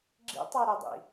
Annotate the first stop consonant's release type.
click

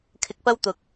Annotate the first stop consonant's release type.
aspirated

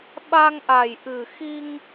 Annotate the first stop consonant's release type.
implosive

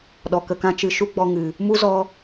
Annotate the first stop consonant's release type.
implosive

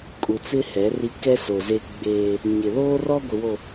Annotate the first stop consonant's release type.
ejective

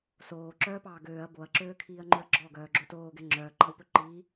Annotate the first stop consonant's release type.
click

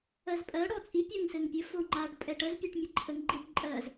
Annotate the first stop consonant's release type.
ejective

